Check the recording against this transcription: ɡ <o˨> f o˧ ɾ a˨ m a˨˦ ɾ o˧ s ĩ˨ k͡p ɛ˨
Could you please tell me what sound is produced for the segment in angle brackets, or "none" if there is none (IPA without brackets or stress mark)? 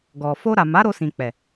ɔ˨